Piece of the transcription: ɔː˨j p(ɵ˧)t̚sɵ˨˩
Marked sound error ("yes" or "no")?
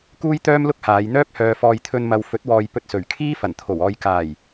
no